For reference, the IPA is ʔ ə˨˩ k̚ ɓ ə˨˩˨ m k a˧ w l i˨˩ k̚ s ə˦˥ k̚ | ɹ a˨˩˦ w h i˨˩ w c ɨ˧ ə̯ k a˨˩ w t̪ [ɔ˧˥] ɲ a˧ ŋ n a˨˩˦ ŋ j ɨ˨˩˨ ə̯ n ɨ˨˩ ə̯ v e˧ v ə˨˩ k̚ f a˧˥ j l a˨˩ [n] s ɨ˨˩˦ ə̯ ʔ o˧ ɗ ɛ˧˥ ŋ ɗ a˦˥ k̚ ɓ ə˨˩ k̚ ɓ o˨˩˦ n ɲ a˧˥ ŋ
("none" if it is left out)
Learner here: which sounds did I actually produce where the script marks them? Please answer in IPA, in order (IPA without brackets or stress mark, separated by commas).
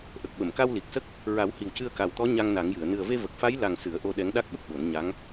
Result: ɔ˧˥, ŋ